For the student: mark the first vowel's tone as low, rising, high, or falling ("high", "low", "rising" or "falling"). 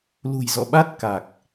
low